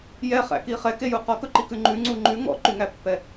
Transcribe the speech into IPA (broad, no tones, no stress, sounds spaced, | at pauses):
j ɛ χ æ̰ k i χ ɛ k e j u q ɔ k ɵ ǃ i k ʉ ŋ͡ǃ ʉ ŋ͡ǀ u ŋ͡ǃ ʉ ŋ ɔ̰ ǃ y ŋ æ pː ɛ